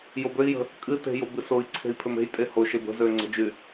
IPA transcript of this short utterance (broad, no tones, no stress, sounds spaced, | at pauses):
j o b ø i̯ j ə̤ | kʼ ɨ t e̤ j o b ɨ s o i̯ ǀʰ e̤ i̯ pʰ ø m e̤ j tʼ e h o ʃ e b ə̤ z ø ŋ͡ǀ ə̤ d͡ʒ y